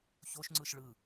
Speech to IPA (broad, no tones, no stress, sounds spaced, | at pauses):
ç o ʃ ŋ͡ǀ ɯ ʃ ɭ ɯ